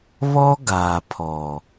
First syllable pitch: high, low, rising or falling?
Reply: high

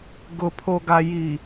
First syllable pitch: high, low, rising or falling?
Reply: low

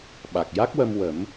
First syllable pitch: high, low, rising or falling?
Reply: low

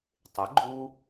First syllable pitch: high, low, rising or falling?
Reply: rising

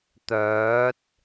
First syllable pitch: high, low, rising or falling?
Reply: rising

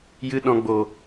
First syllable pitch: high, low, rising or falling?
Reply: high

